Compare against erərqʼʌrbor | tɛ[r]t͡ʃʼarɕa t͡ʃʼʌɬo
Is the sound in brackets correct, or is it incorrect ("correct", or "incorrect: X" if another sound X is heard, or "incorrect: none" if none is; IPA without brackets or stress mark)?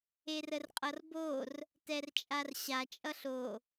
correct